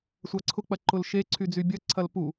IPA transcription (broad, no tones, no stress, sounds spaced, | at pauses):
sʷ a ǀʰ ʊ k͡p ɐ ǃ ʊ l ʃ e ǀʰ y d͡z y bʲ ɐ ǀʰ ɐ l p u